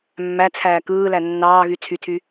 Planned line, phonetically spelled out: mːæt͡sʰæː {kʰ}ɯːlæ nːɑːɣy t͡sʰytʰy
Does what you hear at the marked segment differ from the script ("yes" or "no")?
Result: yes